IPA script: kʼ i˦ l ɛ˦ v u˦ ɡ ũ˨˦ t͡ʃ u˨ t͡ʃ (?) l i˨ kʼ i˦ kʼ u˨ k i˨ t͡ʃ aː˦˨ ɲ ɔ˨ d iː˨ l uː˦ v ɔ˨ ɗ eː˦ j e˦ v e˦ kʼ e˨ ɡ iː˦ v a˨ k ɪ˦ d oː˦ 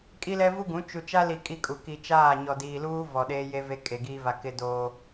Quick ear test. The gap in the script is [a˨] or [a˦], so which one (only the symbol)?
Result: a˦